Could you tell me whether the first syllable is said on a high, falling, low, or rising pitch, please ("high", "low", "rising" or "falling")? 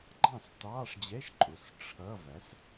falling